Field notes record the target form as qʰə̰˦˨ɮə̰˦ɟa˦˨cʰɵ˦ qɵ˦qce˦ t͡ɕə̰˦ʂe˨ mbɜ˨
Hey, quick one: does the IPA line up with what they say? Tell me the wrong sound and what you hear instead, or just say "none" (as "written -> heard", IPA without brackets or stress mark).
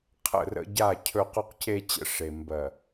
ɮ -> r